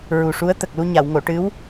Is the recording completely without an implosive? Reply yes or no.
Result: yes